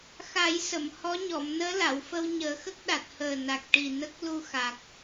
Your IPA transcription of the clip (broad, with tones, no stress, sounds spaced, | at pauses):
x a˨˩˦ j s ə˨˩˨ m h ɔ˧˥ ɲ ɔ˨˩˨ m n əː˧˥ l a˨˩˨ w f ə˧ w ɲ əː˨˩˦ x ə˦˥ k̚ ɗ a˨˩ t̚ h əː˨˩ n a˨˩ k̚ ʈ i˨˩ n ə˦˥ k̚ l u˧ x a˨˩ k̚